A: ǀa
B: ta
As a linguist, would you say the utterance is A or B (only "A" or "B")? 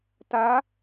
B